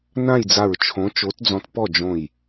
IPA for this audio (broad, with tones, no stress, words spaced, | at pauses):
nã˥˨jd͡za˧˩ɹt͡ʃʰõ˨˥ t͡ʃo˨˥td͡zɔ̃˧˩t pɔ˥˨d͡ʒõ˧˩j